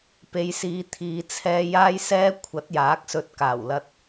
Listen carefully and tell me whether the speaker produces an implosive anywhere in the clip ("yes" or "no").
no